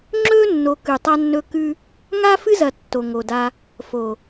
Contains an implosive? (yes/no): no